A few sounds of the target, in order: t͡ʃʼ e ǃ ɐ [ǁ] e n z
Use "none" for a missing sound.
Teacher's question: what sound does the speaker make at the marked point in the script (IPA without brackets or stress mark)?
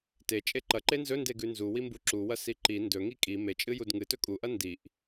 ǃ